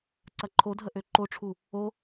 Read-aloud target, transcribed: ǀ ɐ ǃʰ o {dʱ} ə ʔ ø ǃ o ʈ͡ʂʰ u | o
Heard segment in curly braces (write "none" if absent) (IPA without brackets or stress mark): dʱ